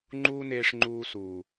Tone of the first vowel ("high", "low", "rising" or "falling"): high